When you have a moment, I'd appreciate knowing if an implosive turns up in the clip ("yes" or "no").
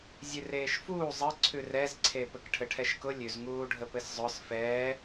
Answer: no